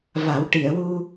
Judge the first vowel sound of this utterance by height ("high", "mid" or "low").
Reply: low